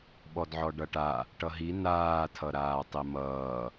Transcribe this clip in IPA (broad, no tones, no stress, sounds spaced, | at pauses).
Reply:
ɓ ɔ d ʕ ɔ ɖ ʌ ʈ a | ʈ ʌ ɦ i n aː tʰ ʌ ɾ aː tˤ i m ʌː